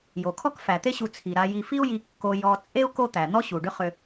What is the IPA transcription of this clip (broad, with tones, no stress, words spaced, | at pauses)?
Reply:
jo˩kʰɔ˦kfæ˩t̪e˦ ɕu˨t͡sʰi˩ɾa˨ ji˨fi˥u̯ji˨ kːo˨jɔ˨ t͡sʼe˥u̯ ko˦t̪æ˩n̪ɔ˥ ɕu˩ɖʏ˦ χʏ˨